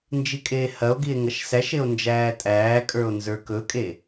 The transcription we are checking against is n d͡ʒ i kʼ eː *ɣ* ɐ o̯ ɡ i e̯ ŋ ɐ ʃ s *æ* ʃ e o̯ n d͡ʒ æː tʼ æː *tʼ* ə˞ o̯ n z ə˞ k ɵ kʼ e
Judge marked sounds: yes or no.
no, yes, no

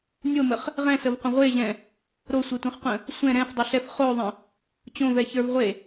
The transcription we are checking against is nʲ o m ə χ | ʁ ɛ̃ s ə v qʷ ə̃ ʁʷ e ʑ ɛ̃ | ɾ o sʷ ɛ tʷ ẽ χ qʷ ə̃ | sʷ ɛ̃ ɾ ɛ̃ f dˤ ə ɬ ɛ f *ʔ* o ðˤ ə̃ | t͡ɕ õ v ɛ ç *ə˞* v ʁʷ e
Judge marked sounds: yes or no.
no, yes

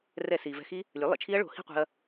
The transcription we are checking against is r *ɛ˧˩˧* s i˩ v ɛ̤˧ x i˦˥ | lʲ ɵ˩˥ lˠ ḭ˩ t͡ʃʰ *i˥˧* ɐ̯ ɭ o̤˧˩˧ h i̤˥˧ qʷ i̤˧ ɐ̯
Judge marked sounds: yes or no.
yes, no

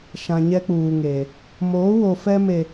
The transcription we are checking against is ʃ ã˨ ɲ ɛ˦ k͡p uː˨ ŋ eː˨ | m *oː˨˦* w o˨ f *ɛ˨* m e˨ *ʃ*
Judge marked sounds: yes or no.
yes, no, no

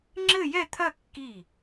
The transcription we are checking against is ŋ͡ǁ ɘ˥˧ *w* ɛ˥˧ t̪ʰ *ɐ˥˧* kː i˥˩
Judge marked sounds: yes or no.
no, yes

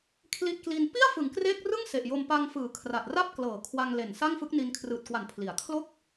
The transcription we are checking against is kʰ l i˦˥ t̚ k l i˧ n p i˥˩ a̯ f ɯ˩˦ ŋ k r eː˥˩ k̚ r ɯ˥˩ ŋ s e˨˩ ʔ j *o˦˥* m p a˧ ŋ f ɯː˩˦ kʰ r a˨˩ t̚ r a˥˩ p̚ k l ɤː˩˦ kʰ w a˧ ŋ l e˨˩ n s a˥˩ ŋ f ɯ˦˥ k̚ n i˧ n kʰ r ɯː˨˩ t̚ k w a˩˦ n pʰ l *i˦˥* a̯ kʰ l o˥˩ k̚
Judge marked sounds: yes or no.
no, no

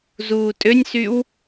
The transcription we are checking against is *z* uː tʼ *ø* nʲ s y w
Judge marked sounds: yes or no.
yes, yes

